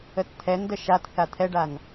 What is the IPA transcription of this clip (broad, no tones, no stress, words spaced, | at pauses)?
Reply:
ətt̪ʰɛndə ʃatθa t̪ʰɛɖan